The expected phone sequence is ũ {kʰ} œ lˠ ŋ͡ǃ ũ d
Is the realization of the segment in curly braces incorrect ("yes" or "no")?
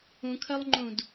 no